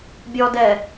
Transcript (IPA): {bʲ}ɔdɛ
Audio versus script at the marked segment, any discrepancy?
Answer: no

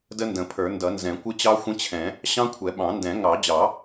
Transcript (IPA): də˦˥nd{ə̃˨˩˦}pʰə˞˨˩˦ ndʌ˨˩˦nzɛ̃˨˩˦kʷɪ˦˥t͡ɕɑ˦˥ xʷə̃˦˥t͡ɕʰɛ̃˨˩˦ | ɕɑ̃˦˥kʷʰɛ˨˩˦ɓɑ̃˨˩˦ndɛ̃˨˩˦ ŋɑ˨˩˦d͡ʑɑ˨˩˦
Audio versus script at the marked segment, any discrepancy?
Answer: no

